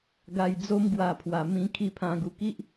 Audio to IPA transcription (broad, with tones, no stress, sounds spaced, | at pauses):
ɡ a˧ j d͡z o˦ m ɡ w a˧ pʰ w a˨˩ m ĩ˧ kʰ i˧ pʰ ã˧ ɡ u˧ k i˦ ʔ